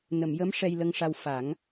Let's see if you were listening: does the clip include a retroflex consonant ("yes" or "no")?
yes